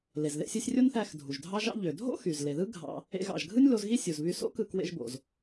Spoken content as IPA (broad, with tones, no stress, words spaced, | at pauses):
le˩zðḛ˧sʲɯ˧sʲ rʲo˥nθæ˧x dʱu˩ʒdʱɑ˥ʒɑ̰˥ ʎø˩dʱo̰˥ xy˩z le˩ðɯ˥ ɡʱɑ̰˧ | ḛ˧ɣɑ̰˩ʒɡʱɯ˥nʲ lo˧zɣi˥ sʲu˩zβy˧so̰˥kɯ˧ kwḛ˧ʒbo̰˩z